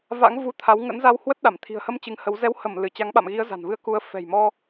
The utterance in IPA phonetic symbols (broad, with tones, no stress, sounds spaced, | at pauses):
v a̰˧˥ ŋ v u˧ t̪ʰ a˨˦ w ŋ ə̰˧˥ n z a˧ w h w ə˦˥ t̚ ɗ a˧˩ m t̪ʰ i̤˨˩ ə̯ h ə˧ m t͡ɕ ɨ˨˦ ŋ h ə˨˦ w z ɛ˨˦ w h ə˧˩ m l ɨ˧˩ t͡ɕ a˨˦ ŋ ɓ a̰˧˨ m ɣ i˨˦ ə̯ z a̤˨˩ n v ɨ˧ ə̯ k u˨˦ ə̯ f ɛ̤˨˩ j m ɔ˧